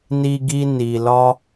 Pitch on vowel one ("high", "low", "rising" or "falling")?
high